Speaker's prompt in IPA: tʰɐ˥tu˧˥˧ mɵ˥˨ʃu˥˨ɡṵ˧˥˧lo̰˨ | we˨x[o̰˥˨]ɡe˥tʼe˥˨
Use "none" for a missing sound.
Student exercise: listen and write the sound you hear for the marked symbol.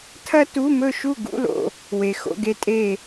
o̰˧˥˧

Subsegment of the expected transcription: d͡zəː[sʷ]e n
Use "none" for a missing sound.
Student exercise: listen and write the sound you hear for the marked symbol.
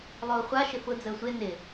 sʷ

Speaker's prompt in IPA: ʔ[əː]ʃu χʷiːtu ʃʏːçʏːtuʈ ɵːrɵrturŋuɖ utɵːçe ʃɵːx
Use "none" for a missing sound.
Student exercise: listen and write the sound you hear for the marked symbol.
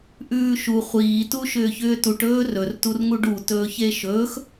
ʉː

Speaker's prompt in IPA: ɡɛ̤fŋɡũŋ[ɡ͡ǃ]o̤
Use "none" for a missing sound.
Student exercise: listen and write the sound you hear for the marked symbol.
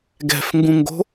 ɡ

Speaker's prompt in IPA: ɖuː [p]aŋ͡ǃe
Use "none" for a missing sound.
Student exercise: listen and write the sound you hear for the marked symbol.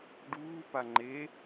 p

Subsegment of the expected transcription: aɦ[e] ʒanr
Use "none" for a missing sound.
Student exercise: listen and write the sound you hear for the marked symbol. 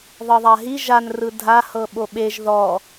i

